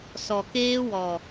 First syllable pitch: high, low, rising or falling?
low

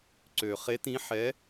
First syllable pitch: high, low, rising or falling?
low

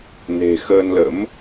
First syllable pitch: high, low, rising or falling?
low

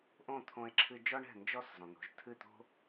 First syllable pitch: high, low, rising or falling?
falling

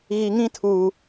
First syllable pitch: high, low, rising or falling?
low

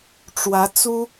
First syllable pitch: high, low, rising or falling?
rising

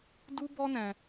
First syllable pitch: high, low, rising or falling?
high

